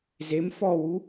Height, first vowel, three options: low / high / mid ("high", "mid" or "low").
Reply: mid